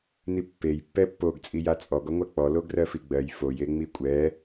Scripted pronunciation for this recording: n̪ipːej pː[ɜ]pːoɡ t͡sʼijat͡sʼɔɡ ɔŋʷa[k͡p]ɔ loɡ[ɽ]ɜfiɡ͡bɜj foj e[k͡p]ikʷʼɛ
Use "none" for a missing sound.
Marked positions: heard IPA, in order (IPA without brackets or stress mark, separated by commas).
ɛ, k͡p, r, ŋ͡m